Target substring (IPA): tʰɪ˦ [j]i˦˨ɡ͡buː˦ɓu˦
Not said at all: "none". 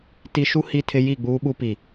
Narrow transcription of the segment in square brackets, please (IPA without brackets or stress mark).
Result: j